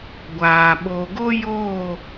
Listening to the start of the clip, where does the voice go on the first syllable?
low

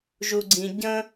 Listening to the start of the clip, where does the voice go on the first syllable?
low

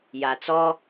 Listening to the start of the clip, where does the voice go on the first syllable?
low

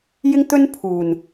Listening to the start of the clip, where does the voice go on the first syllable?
high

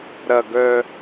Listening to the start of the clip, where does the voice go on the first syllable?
low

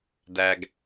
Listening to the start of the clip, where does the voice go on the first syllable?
low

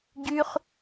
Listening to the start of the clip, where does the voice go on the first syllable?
high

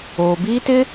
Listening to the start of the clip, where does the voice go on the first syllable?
low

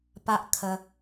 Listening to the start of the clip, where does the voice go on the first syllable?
high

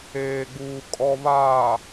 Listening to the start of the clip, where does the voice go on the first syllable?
low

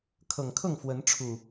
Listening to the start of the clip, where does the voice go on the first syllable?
low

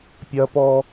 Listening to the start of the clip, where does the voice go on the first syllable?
high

